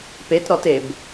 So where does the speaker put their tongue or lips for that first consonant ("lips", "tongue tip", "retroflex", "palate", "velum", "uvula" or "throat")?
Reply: lips